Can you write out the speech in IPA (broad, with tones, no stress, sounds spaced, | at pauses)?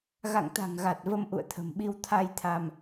ɣ a̰˧˨ ŋ t̪ a̤˨˩ ŋ ɣ a˨˩ t̚ v ə˧ m ʔ ṵ˧˨ ə̯ t̪ʰ ə̤˨˩ m ɓ i˧ w t̪ʰ a˧ j t̪ʰ a˧ m